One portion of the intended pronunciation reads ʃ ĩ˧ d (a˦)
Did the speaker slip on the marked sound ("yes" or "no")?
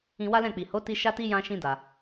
yes